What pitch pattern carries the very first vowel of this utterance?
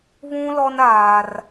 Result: high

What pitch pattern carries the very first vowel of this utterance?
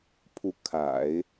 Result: rising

